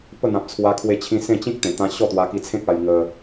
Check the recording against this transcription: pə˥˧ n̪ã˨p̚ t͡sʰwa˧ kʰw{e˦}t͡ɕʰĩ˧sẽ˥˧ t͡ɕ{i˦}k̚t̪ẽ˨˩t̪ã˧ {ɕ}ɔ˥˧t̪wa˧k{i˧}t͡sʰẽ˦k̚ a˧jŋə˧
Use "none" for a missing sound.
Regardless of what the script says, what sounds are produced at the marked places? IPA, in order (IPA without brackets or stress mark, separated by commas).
e˧, ĩ˦, ɕ, i˧